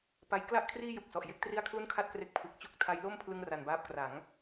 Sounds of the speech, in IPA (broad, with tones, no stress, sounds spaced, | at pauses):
p a˦˥ j k l a˥˩ ʔ kʰ r iː˥˩ j u˨˩ k̚ s ɔ˨˩ ʔ j e˦˥ k̚ t r i˥˩ a̯ kʰ l u˥˩ n kʰ a˥˩ t̚ k r e˦˥ k̚ pʰ ɯ˨˩ k̚ t͡ɕ u˦˥ k̚ tʰ a˦˥ j l o˥˩ m pʰ l ɯ˥˩ ŋ r a˧ n b aː˦˥ p̚ k r a˩˦ ŋ